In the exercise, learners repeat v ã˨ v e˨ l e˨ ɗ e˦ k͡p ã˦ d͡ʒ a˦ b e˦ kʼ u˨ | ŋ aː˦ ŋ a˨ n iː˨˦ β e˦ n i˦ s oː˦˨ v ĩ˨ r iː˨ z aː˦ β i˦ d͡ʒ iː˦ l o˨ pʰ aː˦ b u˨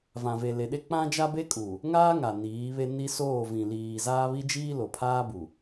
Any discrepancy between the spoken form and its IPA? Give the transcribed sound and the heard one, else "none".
r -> l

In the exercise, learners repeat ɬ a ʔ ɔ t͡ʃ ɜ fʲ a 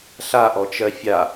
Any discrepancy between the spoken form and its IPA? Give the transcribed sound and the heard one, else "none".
none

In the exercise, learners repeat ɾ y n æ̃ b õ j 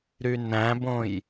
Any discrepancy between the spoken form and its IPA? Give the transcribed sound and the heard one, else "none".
none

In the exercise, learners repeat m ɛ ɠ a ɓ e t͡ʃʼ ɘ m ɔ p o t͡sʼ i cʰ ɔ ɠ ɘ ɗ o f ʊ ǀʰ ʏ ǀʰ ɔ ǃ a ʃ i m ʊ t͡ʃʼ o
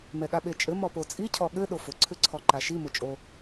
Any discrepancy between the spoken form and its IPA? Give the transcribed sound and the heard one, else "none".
none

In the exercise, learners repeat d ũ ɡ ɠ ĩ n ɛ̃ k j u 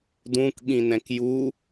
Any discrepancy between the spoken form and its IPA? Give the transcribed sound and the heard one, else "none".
ɡ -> k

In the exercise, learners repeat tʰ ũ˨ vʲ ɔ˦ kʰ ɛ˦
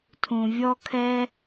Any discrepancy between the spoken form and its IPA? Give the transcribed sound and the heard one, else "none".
none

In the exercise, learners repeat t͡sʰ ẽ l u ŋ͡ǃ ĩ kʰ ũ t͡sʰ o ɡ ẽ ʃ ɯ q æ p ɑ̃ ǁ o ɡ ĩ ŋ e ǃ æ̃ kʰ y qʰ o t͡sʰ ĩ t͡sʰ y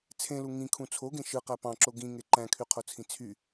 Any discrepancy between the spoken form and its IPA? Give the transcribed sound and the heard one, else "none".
ŋ͡ǃ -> ŋ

